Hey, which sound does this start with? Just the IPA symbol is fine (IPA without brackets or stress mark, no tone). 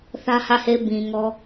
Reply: θ